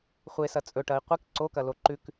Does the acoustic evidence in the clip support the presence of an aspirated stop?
no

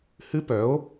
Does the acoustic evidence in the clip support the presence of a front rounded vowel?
yes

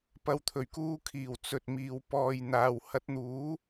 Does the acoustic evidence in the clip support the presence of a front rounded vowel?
no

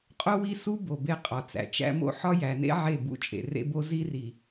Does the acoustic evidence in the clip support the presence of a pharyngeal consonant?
yes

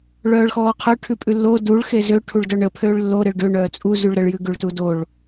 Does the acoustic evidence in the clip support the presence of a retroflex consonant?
yes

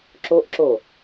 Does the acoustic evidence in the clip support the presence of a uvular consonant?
no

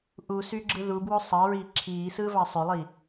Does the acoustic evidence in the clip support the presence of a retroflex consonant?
no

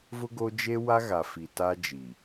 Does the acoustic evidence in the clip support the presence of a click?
no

